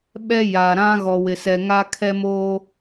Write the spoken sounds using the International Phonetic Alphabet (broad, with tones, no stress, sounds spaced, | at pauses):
ɓ ɛ˦ j a˨ ɾ ã˦ ɣ ɔ˨ w ɪ˨ s ɛ˨ ŋ a˦ kʰ ɛ˦ m oː˦